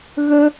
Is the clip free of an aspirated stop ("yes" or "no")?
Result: yes